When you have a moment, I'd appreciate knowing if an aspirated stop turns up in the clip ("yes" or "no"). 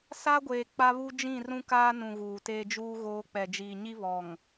no